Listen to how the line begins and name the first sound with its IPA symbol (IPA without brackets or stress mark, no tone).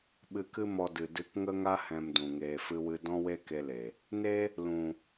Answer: ɓ